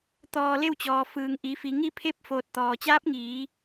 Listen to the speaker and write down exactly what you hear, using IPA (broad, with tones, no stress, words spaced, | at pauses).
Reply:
t̪ɔː˧˩le˥˨wt͡ɕɔː˩fɯː˩ŋ ʔi˩˧fi˩˧ ŋi˥˨pʰe˥˨p̚ foː˧t̚ t̪ɔː˩t͡ɕaː˧˥p̚ŋiː˩˧